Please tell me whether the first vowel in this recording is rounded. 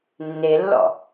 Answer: no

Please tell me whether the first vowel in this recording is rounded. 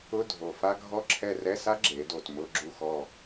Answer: yes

